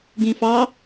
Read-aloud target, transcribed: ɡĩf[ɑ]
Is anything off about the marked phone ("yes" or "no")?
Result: no